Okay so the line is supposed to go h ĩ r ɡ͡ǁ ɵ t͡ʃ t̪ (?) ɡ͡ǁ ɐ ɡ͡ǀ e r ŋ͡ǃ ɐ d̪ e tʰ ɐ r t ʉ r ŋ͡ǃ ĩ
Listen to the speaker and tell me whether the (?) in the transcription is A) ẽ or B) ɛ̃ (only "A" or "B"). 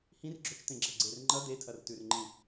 A